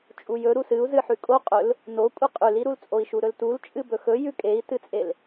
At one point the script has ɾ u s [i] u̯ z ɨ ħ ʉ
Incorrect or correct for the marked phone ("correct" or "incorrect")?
incorrect